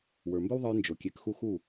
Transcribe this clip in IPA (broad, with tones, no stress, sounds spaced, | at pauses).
w ə˞˨ m b ɵ˦ w ðˤ ə˞˧ j n d͡ʒ o˨ kʲ e˨˦ k x u˦ x u˦˨